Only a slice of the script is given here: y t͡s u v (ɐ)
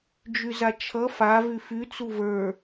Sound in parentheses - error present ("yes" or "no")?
yes